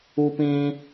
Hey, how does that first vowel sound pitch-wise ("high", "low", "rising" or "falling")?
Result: high